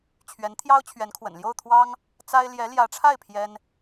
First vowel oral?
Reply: yes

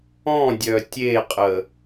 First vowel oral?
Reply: no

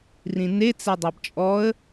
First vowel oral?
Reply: no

